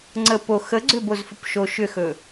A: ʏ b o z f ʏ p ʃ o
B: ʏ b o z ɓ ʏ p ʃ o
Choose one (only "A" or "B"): A